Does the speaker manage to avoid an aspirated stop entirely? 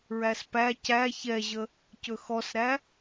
yes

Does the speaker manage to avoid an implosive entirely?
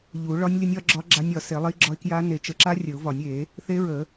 yes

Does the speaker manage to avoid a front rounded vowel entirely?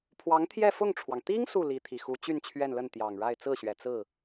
no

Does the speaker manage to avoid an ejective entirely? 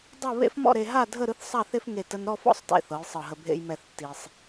yes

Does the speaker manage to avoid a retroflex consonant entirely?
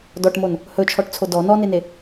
no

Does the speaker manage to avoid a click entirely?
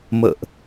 yes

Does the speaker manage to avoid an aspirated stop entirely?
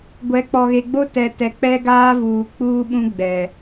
yes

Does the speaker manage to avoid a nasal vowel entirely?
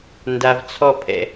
yes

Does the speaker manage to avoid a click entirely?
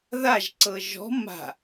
no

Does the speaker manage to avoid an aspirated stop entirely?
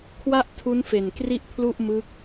no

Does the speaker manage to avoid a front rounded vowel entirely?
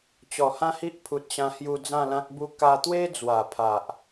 yes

